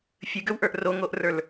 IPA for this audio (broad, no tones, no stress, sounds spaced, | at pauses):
fʲ ɨ ɡ ø w ʔ ə˞ ʔ r o ŋ o ʔ r ə˞ l